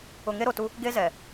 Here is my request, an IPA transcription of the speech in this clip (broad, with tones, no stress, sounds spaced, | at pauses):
ʊ˨ ŋ e˦ ɾ o˨ t u˦ | ɡ e˦ z ɛ˨